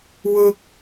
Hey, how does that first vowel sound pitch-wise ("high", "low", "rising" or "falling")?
high